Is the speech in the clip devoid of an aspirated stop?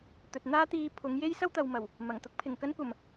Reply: no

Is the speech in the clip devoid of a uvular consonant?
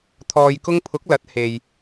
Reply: yes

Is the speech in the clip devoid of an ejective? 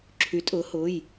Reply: no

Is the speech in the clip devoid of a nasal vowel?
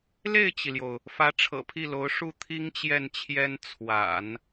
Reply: yes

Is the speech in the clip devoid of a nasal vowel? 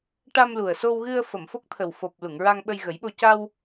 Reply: yes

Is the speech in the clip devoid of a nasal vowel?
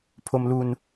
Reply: yes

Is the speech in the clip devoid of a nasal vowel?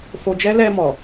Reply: yes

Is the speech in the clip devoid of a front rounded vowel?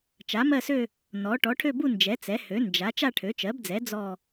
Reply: no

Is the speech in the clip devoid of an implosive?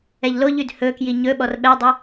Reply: no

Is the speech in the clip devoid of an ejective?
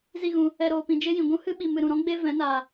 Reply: yes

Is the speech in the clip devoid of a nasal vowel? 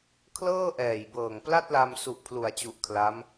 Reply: yes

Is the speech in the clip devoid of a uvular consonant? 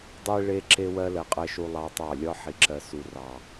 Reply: no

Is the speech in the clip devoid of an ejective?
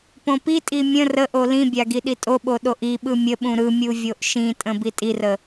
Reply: no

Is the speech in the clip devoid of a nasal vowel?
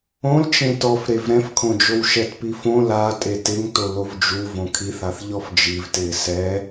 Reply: no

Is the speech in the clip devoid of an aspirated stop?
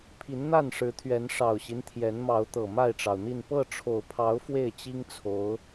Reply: no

